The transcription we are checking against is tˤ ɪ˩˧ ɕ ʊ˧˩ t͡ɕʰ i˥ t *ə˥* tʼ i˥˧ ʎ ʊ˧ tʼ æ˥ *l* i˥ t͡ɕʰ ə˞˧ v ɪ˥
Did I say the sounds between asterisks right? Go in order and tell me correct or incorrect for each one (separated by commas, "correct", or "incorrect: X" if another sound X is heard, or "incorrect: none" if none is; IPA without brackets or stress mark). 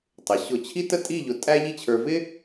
correct, incorrect: ʎ